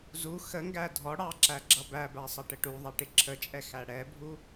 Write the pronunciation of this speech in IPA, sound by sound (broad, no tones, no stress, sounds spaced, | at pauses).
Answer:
z u x ə ŋ ɡ æ dʱ ɔ ɽ ɑ ǁ æ ɡ͡ǁ ʌ b æ b æ sˤ ʌ ʈ ə ʈ u ðˤ i ʈ ɪ ǁʰ ə t͡ʃʼ ɛ x æ ɽ ɛ bʱ u